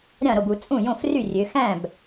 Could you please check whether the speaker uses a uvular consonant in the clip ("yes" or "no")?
no